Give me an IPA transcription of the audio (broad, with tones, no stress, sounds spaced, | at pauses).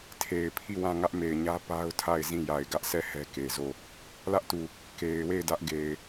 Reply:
tʰ e˨ ɪ̯ pʰ i˦˨ w ã˦˨ ŋ ä˦ ʔ m e˨ ɪ̯ ɲ ä˦ p a˦ ʊ̯ tʰ a˦˨ ɪ̯ z ĩ˦˨ j a˨ ɪ̯ ɡ ä˦ ʔ sʰ ɛ˦˨ h ɛ˦ k e˨ z o˦˨ | l ä˦ ʔ t u˨ | k e˨ ɪ̯ w e˦˨ ɪ̯ d ä˦ ʔ ɡ e˨ ɪ̯